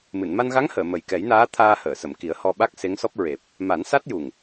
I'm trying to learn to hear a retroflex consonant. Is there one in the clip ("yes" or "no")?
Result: no